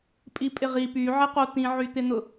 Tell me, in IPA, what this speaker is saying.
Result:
pʼ i pʼ ɪ ʁ i p y ʕ ɪ q o t̪ ĩ ʕ y t̪ ɪ n̪ ʊ

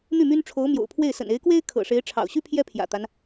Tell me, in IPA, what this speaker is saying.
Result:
n̪ y˥˩ m y˥ n ʈ͡ʂʰ o˧˥ ʊ̯ m j o̰˨˩ ʊ̯ pʰ w e˥˩ ɪ̯ s ə̰˨˩ n e˧˥ ɪ̯ k w e˥ ɪ̯ kʰ ɤ̰˨˩ ʂ e˧˥ ɪ̯ ʈ͡ʂʰ ɑ̰˨˩ ʊ̯ ɕ y˥ pʰ j ɛ˥ pʰ j ä̰˨˩ t̪ a˦ n

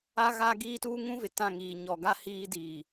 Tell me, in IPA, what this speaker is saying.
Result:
a˦ ɣ aː˦ ɡ iː˦ t uː˦ ŋ ũ˦ v ɪ˨ t ã˦˨ ŋ iː˨ ɲ ɔ˨ ɡ a˦ h iː˦ d iː˨

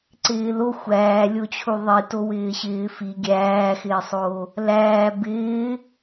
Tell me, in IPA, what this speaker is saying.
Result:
ǀ ɪː l o xʷ æː lʲ o t͡ɕʰ u ðˤ i t o w ɪː ɕ ɪː f i ɡʲ æː x ɪː sˤ o | l æː b ɪː

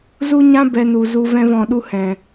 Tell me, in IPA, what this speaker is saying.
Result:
z u˦ ɲ ã˦ b ɛ˧ n u˨ z u˧ v ɛ̃˧ v ɔ̃˨ ɗ u˧ h ɛ̃˨

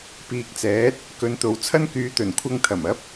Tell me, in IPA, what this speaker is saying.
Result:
p iː˨ k̚ t͡s ɛː˨˥ t̚ | k ɵ˨˧ n t̪ o˨ w t͡sʰ ɐ˥ n k yː˨˧ t̪ ɵ˨˩ n kʷʰ ɐ˧ ŋ t̪ʰ ɐ˨˩ m ɐ˨˥ p̚

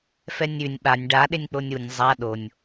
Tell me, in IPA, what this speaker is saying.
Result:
f ɛ nʲ ʉ nʲ ɓ a nʲ ɖ a ɗ e nʲ k͡p o nʲ u nʲ zˤ a ɗ o nʲ

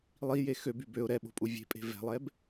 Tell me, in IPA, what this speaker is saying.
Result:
lˠ i j e x ø b y b ø ʊ̯ ɾ ɛ ɓ o̤ pʼ u vʲ e̤ pʼ e̤ v ɛ̤ lˠ ɛ b

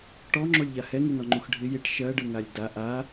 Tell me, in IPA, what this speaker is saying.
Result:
ʈ ɔ ŋ͡ǁ o lʲ ʎ a h ɛ ŋ ʉ n ɔ ŋ͡ǃ u x ɖʱ ɪ j ɪ ʈ ʃ ɜ ɖ ɯ ŋ a lʲ d a ʔ a

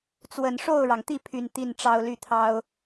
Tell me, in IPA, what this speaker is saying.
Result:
t͡s w ə˨˩ n ʂ o˥˩ ʊ̯ ɻ ɑ˩ ŋ t̪ i˥˩ pʰ y˨˩ n t̪ i˥˩ n ʈ͡ʂ ɑ˥ ʊ̯ l y˥˩ t̪ʰ ɑ˥ ʊ̯

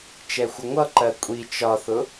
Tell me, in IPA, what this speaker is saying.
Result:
t͡ʃ ɛ xʷ ə ŋʷ ʌ ǃ ɜ kʷʼ i t͡ʃ ɒ θ ʊ

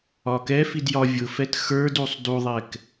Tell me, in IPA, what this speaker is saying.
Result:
ɒ k ɛ f i d j ɒ vʲ ʊ f ɛ t x ə˞ d u sˤ d u ðˤ ɛ k

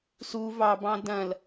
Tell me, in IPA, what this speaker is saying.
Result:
s u v ɑ b ɑ̃ d ɐ̃ l

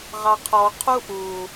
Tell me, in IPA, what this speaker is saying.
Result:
ʁ ɑ qʰ ɔ qʰ u ʔ u

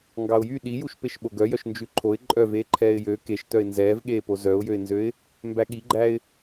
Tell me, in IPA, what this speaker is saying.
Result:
ŋ ɡ ɑ ʊ̯ j y ɗ i j u ʃ p e ʃ ɓ o ɡ œ j œ ʃ n d͡ʒ ʉ ǃʰ o ɪ̯ ǃʼ œ v eː ǃʰ ɛː ɪ̯ j ø k e ʃ t œ ɪ̯ n z ɛː v ɠ eː p o z œ ʊ̯ j ø ɪ̯ n z ø ɪ̯ | m b æ ɠ i ɡ͡ǃ æ ɪ̯

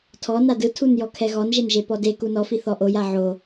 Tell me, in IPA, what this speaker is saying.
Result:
tʰ ɔ n a d ɯ tʰ u n j ɔ kʰ ɛ ɣ ɔ n ʒ e n ʒ e p ɔ d e k u n ɔ f i θ ɔ ʔ o j a ʕ o

